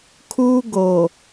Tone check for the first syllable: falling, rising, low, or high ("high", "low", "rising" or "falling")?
high